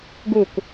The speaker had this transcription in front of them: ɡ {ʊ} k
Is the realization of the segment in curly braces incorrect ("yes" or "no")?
yes